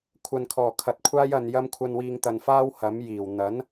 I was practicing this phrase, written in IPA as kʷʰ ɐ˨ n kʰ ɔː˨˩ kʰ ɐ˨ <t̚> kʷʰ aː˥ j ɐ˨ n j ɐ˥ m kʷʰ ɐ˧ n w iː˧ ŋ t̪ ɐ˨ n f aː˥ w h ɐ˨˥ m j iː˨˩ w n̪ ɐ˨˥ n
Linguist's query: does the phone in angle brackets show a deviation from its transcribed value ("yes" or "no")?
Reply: no